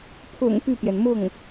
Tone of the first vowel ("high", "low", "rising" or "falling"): low